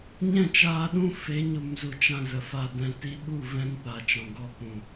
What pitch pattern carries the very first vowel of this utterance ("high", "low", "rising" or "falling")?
falling